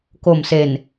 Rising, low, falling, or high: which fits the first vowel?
low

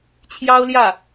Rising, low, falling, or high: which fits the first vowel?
high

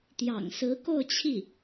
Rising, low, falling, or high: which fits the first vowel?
low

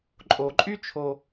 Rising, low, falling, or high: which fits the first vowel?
low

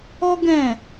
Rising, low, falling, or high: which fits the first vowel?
high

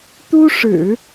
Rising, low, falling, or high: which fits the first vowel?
high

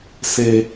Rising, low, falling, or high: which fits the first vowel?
high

